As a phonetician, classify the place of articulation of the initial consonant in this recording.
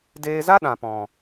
alveolar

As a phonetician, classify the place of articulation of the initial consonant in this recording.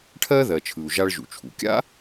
retroflex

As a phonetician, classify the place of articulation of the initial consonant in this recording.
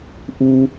glottal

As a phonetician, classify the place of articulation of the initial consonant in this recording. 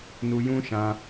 alveolar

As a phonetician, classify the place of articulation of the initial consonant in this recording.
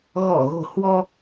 velar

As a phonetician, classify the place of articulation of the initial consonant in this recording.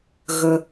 velar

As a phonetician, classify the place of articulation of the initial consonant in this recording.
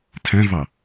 alveolar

